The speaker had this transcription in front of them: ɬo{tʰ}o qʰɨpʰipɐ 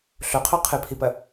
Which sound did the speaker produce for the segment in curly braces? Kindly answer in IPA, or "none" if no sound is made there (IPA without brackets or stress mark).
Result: qʰ